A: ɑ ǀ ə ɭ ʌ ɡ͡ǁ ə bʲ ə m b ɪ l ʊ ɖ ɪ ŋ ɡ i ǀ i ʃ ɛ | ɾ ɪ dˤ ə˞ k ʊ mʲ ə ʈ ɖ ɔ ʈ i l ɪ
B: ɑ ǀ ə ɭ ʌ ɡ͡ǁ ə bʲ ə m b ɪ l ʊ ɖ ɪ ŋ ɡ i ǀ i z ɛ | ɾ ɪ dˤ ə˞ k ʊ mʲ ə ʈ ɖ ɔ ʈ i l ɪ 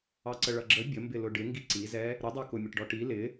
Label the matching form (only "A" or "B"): B